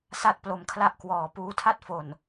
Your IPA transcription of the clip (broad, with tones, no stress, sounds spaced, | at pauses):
s a˥˩ t̚ p l o˧ m kʰ l a˥˩ ʔ k w ɔː˨˩ p uː˧ tʰ a˥˩ t̚ f o˨˩ n